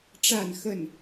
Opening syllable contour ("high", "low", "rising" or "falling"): falling